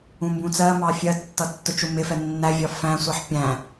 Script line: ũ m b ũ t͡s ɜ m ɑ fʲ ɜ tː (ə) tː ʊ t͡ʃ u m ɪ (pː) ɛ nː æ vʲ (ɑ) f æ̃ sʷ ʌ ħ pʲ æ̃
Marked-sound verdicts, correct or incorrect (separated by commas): incorrect, incorrect, incorrect